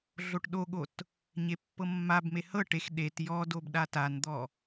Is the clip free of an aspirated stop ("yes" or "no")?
yes